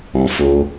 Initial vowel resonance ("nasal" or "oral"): nasal